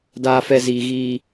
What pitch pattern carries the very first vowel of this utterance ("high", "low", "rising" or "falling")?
low